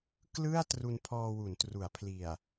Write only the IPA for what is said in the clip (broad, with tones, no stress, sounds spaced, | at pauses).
k l ɯ˥˩ a̯ t r u˧ n pʰ ɔː˧ w u˩˦ n t r u˩˦ a̯ pʰ l i˨˩ a̯